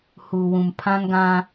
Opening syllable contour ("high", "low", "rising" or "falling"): low